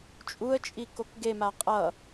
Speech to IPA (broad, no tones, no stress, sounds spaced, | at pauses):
t͡ʃʼ u ə̯ t͡ʃʼ i k o k ɡ e m a qʼ ʌ